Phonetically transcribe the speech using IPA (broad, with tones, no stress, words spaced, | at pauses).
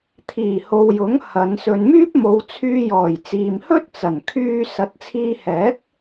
t̪ʰiː˨˩ho˨wjʊ˨˥ŋ hɐ˨˧n sɵ˨nmyː˥p̚mo˨˧wt͡sʰyː˧ jɔː˨˩jt͡siː˨m hɵ˥t̚t͡sɐ˨˩nkʰyː˧ sɐ˨˥t̚t͡sʰiː˧hɛː˨˥k̚